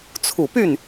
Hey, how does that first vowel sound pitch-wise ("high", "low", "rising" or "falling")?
low